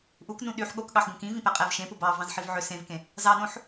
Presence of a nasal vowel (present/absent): present